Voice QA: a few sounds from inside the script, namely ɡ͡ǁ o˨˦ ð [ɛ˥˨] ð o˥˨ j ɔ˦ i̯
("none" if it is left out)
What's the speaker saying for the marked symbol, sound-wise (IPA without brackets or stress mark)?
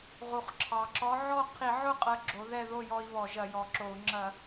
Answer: ɛ˥˨